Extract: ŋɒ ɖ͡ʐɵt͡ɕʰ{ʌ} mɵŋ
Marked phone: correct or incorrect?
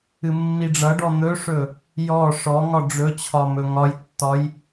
incorrect: ɒ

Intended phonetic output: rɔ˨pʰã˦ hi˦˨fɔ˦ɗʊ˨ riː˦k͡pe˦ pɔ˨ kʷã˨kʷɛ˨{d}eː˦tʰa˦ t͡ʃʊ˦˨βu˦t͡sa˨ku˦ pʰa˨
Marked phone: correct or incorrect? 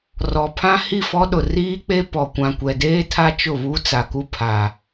correct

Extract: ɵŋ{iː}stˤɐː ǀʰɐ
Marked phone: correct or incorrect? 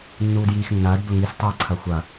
incorrect: i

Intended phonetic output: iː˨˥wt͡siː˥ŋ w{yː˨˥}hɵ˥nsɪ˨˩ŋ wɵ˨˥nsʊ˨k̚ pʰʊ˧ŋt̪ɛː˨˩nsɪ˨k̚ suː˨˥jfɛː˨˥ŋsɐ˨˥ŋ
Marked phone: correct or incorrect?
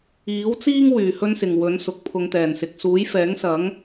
incorrect: yː˨˩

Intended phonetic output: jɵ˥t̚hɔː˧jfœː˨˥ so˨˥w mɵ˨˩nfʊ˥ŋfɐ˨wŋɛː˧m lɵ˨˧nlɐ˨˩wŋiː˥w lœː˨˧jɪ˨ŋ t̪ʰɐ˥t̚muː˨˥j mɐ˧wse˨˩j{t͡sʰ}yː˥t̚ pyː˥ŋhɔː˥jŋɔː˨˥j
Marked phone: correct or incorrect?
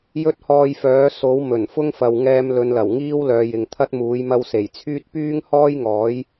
correct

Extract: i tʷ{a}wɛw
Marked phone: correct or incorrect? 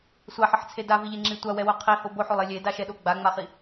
correct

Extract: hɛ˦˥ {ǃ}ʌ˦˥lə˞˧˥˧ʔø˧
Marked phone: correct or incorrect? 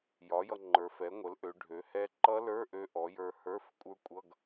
correct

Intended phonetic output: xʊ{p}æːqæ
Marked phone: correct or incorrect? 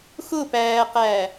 correct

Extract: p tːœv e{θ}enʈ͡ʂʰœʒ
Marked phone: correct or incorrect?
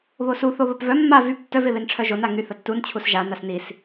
incorrect: β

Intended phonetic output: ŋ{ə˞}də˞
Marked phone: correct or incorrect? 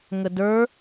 incorrect: ə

